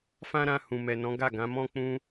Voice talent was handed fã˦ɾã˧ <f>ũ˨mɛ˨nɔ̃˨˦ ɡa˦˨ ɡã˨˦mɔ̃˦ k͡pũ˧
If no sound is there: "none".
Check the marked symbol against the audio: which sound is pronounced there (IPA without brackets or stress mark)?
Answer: h